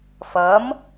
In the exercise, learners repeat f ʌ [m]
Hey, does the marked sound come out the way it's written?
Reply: yes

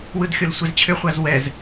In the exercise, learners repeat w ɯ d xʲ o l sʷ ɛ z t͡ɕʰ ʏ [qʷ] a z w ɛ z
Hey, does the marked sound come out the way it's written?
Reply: no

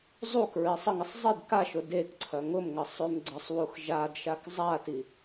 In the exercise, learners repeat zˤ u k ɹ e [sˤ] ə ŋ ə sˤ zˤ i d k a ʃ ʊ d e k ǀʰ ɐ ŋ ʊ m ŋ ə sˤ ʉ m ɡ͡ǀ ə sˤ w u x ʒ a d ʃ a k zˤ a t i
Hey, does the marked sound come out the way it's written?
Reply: yes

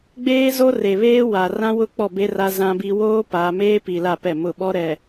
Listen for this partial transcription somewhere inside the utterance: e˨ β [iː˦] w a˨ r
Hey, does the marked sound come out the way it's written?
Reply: no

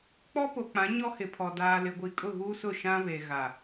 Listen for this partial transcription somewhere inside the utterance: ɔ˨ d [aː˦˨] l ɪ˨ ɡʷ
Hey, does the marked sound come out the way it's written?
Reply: no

